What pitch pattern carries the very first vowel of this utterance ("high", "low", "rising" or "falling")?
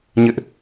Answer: high